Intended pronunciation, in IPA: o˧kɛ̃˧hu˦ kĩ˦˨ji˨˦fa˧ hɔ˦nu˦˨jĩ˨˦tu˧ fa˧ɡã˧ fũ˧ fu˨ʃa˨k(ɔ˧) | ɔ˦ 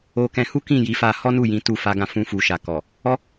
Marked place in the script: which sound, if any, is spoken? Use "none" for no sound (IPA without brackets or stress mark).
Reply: ɔ˨